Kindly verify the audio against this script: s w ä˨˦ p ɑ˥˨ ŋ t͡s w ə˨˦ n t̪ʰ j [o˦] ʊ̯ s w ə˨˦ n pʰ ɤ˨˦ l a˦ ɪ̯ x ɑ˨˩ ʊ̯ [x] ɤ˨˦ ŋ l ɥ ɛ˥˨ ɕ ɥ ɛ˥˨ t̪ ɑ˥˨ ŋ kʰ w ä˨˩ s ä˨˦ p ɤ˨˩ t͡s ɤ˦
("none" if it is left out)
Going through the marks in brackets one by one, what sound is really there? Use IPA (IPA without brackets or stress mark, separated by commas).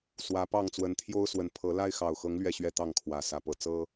o˦, x